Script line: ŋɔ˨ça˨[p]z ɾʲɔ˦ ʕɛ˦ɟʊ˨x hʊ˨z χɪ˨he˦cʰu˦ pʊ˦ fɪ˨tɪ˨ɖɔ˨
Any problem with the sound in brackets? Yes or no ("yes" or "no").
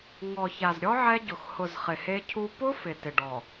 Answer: yes